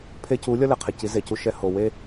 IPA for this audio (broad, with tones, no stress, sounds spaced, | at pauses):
pʰ e˧ c u˨˦ lʲ ʌ˦ l ɛ˨ qʰ e˨ c i˨˦ z e˨ c u˧ ʃ ɛ˧ h o˨ w e˦